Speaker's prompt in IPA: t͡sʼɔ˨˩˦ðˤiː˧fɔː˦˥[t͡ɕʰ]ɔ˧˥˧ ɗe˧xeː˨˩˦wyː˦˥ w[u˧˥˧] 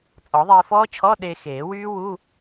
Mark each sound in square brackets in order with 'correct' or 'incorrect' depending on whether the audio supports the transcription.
correct, correct

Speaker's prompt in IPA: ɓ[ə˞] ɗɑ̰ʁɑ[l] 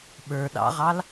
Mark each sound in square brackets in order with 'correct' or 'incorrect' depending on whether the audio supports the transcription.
correct, correct

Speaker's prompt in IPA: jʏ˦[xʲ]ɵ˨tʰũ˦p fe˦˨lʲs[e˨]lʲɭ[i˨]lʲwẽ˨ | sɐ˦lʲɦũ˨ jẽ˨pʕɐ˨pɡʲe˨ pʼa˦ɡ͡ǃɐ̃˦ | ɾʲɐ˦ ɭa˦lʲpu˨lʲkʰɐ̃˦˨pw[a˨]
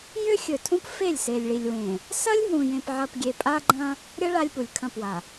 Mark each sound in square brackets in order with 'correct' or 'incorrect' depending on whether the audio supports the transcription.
correct, correct, correct, correct

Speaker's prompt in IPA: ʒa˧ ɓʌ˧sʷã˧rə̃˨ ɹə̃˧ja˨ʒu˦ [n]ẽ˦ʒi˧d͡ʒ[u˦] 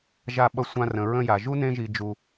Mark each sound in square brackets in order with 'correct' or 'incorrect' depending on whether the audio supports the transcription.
correct, incorrect

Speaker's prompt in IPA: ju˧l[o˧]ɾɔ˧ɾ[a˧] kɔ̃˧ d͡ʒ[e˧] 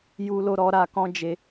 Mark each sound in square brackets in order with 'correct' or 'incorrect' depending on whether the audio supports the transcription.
correct, correct, correct

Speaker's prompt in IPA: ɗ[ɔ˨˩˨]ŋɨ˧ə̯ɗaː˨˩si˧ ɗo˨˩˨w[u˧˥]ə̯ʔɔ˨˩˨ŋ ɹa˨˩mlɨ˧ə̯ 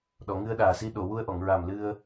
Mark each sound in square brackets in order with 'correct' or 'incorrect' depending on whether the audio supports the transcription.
correct, incorrect

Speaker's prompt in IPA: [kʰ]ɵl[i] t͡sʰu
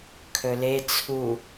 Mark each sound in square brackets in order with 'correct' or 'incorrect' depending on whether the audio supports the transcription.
correct, incorrect

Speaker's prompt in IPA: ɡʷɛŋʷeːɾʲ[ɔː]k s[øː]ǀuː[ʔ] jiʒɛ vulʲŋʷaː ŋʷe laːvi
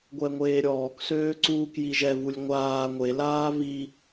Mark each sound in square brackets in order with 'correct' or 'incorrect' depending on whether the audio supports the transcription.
correct, correct, incorrect

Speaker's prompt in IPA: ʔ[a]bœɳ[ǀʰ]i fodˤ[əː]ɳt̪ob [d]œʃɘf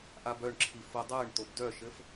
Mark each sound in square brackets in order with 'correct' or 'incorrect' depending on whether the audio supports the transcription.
correct, incorrect, correct, correct

